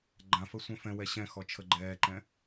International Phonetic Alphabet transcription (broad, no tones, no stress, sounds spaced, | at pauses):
ɡ͡ǃ ã f ə sʷ œ̃ f ɛ̃ w ɛ ɕ ɛ̃ x ɔ t͡ʃʰ ə ɡ͡ǃ ɛː ǃ ɛ̃